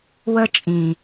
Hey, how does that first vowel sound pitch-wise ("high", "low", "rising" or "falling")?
high